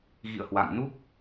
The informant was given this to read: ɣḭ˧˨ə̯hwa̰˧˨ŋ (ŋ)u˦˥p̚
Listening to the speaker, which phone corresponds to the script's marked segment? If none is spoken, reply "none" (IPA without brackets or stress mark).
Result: n